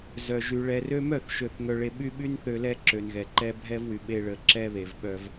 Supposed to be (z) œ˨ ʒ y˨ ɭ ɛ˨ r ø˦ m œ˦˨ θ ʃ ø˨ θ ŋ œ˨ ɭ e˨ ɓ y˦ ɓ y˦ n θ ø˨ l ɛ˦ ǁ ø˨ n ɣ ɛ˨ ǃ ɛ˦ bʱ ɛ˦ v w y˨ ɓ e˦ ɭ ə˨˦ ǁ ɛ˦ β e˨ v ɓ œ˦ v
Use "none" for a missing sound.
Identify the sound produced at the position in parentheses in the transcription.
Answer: z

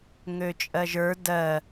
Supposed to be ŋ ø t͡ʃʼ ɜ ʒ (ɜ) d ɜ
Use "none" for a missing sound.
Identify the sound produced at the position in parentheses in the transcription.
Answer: ə˞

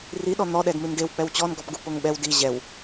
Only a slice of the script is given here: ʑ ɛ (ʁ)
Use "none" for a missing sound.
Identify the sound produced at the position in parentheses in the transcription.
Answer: w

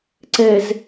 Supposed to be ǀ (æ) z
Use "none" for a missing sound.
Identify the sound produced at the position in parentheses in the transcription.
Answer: ɛ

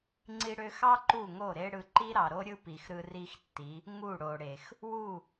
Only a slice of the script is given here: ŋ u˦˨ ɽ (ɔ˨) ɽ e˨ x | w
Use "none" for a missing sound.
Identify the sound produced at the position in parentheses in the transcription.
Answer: o˨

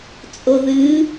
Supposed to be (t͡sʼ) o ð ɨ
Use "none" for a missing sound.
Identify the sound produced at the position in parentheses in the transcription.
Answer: t͡sʼ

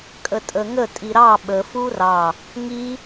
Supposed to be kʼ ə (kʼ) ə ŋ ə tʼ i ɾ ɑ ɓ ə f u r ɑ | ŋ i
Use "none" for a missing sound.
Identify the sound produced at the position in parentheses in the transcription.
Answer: tʼ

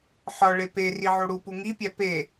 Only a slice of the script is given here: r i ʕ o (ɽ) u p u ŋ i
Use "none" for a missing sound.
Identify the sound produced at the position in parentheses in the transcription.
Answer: ɽ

